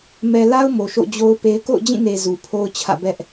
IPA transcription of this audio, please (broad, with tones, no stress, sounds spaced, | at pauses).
m ɛ˨ l a˦ ʊ̯ m o˨ ʃ o̰˦˨ d͡ʑ o˦ ʊ̯ p e˦ ɪ̯ k o̰˦˨ ʊ̯ d͡ʑ ĩ˦˨ n e˨ z u˨ pʰ o˦ ʊ̯ t͡ɕʰ ä̰˦˨ b ɛ˦ ʔ